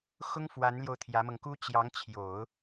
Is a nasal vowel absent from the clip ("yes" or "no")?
yes